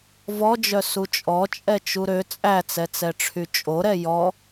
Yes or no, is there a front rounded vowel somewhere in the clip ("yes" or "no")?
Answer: yes